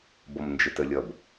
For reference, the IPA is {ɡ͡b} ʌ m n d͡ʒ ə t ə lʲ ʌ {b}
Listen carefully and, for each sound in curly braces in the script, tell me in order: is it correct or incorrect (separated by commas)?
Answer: incorrect, correct